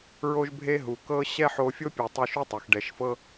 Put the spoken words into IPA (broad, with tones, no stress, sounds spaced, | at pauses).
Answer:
ɹ o˥ ʒ bʱ e˥ ɦ u˩ k ɤ˧ ɕ ɛ˥ ħ o˧ fʲ o˥ pʲ u˩ tˤ o˧ ʃ u˥ tˤ ɛ˩ x ɖ ɛ˩ ʃ f ɤ˥